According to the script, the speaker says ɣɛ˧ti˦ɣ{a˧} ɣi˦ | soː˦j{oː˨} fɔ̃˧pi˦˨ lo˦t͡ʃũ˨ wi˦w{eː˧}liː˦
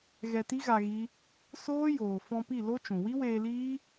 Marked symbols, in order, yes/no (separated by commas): yes, yes, yes